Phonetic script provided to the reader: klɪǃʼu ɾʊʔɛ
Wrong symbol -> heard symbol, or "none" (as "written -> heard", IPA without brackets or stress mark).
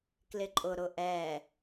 u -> ʊ